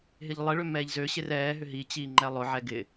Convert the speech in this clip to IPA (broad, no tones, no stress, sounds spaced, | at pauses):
ɦ ɪ ʎ lˠ ɪ ɭ ʏ m ɛː ʎ z ø ɕ ɪ r ɛː ɦ ʏ ɦ i t͡ɕ iː ŋ͡ǃ ɛ lˠ ʊ ʕ ɛ ɡ ɪ